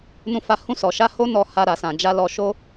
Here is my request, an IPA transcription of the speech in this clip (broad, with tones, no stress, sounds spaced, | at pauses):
n ũ˧ f a˧ h ũ˧ s ɔ˨ ʃ a˧ h o˦ n ɔ˧ h a˧ ɾ a˨ s ã˨ d͡ʒ a˧ l ɔ˧ ʃ o˦